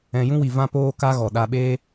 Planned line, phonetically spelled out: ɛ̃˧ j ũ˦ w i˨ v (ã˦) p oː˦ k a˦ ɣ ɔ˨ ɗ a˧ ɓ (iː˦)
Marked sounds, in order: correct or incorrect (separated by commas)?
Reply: correct, incorrect